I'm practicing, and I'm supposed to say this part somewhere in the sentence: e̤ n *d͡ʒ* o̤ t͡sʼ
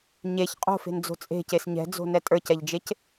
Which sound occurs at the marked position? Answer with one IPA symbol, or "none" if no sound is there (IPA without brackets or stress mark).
d͡z